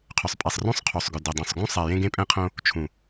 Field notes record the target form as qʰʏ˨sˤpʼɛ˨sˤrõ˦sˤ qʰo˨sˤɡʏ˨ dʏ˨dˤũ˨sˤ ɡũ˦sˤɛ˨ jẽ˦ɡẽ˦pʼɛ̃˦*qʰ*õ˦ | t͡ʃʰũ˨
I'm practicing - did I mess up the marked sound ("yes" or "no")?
no